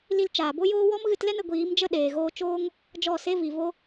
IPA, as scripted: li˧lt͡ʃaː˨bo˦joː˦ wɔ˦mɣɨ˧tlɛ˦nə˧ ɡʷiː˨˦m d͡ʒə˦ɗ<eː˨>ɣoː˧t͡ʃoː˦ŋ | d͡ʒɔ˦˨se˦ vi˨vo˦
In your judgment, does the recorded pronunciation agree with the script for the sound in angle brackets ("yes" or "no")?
yes